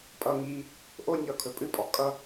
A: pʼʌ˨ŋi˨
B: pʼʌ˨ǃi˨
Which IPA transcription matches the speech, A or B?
A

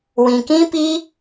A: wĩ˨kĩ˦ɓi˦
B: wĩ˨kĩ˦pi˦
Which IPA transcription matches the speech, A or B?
B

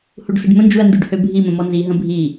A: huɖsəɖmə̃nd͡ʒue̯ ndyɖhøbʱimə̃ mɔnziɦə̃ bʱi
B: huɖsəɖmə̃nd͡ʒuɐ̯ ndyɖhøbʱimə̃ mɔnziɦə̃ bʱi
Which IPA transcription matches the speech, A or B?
B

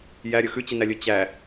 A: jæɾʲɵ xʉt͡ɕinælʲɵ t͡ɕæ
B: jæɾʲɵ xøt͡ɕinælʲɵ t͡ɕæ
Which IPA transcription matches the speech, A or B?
A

